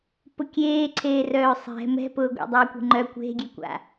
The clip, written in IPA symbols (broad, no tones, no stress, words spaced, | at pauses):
pʊkʲeːǀʰeː rœːsˤɛ̤ mɛ̤pʊːɡʷḛ dˤœːkʷe̤ŋ͡ǃœ kʷe̤ɡʲɛkʷa̰